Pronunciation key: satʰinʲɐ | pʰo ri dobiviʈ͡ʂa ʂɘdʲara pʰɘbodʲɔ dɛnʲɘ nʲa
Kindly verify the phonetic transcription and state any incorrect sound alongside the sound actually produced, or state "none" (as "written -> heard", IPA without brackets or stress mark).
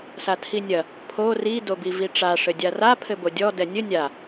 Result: none